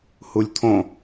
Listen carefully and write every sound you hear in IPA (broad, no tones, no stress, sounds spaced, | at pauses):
h u lʲ t̪ʰ õ